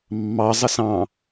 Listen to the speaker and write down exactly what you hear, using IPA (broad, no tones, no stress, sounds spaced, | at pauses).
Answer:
mː ɑ zˤ ə s ɑ̃